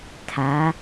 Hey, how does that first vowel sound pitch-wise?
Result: rising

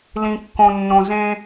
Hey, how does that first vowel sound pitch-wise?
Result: low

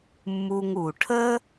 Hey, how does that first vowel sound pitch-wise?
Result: low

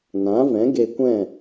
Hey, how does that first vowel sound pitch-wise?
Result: rising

